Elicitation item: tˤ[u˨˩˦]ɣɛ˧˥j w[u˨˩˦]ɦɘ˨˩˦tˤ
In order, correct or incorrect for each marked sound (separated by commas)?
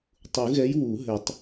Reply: correct, correct